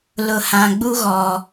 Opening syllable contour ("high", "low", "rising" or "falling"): low